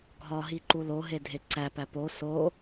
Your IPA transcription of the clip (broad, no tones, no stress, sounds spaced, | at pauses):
ɡʱ ɒ ɦ i ǃ u l o ɦ e dʱ e ǀ æ p æ p o s o